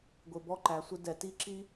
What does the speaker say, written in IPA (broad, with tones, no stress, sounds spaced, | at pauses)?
ɡʷ ɪ˨ b ɔ˧ ǃ æ˨ sʷ ɪ˧ d ɛ˨ t i˦ ǁ i˦